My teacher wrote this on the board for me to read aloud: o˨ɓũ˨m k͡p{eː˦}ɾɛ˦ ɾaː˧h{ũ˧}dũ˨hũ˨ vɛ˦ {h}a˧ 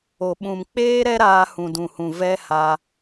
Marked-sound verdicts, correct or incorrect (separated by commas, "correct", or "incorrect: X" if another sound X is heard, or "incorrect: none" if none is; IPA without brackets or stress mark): correct, incorrect: ũ˨, correct